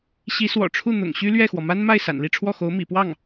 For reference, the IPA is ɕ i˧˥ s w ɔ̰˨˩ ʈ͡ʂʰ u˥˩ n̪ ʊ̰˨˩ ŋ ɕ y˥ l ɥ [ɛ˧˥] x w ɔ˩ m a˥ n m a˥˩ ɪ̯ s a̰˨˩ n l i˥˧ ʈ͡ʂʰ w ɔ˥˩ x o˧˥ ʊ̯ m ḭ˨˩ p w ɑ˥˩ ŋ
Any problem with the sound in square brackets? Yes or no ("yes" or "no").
yes